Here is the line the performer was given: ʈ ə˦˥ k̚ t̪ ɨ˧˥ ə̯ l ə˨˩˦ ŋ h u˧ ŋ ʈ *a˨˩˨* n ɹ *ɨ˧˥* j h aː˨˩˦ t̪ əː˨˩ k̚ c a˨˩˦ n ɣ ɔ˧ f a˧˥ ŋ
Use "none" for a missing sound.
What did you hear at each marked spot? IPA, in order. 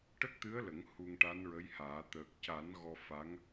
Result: a˧˥, ə˧˥

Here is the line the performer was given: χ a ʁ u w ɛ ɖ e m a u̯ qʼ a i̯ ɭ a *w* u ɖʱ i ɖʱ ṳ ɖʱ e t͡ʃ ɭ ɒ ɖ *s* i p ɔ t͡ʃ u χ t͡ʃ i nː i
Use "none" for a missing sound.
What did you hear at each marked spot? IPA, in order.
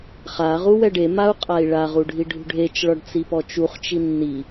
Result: ʁ, t͡s

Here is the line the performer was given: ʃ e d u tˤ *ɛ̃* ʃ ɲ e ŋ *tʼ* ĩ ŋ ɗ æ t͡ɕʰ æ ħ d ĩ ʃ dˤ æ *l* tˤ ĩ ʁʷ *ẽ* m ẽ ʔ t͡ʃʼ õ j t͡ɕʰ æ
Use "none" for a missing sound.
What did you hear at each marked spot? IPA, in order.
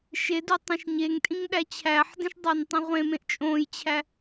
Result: ẽ, tʼ, n, ẽ

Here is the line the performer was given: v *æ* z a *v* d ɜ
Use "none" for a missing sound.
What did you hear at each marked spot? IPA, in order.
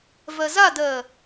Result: ɜ, none

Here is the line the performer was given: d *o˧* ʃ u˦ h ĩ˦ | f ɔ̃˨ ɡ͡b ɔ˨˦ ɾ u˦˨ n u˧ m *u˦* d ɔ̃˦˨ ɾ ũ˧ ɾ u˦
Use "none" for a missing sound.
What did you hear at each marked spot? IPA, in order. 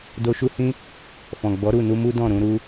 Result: o˧, u˦

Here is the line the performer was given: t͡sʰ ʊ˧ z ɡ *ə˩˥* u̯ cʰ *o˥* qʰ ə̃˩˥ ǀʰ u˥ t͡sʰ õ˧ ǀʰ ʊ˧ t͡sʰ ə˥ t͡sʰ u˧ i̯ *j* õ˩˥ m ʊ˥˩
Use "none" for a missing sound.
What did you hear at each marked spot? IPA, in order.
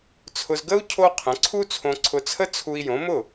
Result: ə˥, o˥, j

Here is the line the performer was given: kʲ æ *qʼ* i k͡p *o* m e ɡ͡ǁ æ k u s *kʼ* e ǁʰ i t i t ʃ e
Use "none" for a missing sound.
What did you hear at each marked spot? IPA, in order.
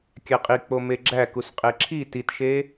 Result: qʼ, o, qʼ

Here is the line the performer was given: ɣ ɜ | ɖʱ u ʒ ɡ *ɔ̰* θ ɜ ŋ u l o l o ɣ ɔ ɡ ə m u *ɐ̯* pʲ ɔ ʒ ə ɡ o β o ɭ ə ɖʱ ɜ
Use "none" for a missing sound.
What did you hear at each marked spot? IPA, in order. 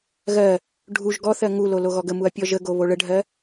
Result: ɔ, ɐ̯

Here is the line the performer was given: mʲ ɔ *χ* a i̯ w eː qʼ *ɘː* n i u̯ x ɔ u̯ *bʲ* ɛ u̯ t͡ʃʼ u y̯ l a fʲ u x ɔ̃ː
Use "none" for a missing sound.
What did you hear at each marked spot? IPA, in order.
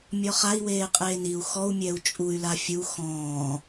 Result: χ, eː, mʲ

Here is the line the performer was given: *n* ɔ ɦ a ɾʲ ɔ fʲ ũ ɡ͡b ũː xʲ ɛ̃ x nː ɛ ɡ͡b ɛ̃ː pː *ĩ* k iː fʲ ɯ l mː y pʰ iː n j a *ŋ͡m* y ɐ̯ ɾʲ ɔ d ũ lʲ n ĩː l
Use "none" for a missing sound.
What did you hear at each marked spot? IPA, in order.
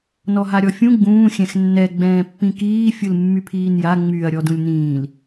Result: n, ĩ, ŋ͡m

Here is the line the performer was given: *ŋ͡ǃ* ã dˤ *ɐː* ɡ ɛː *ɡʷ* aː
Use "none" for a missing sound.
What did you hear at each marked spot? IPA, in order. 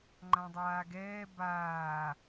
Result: ŋ͡ǃ, aː, b

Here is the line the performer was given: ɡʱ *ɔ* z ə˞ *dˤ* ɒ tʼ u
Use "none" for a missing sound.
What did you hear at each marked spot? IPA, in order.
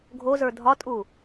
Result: o, dʱ

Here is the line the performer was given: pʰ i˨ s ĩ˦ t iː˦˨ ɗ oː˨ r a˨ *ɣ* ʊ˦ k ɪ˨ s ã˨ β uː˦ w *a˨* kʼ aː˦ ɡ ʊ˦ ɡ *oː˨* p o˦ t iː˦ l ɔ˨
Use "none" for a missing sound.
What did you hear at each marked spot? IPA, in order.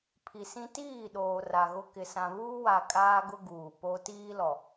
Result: ɣ, a˨, uː˨

